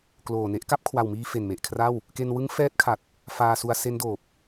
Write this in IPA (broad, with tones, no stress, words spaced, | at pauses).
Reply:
kloː˨˩ne˦˥ʔ ka˦˥p̚kʰwa˨˩wmiː˧ fe˨˩nme˨˩ʔkʰra˥˩w | ke˧nwɯ˦˥ŋfɛː˦˥t̚kʰa˨˩t̚ | faː˧su˧a̯ se˦˥ndoː˨˩p̚